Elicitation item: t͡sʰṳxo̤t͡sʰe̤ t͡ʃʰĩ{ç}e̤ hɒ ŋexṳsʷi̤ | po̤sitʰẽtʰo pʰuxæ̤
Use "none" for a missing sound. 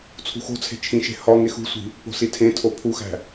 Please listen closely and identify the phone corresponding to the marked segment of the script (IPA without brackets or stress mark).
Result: ʃ